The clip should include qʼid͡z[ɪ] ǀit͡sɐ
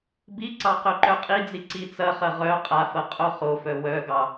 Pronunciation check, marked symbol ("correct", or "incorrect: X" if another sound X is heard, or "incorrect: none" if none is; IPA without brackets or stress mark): incorrect: i